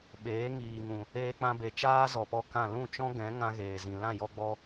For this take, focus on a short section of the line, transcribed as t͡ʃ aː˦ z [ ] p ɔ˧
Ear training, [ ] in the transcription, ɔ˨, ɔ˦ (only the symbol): ɔ˨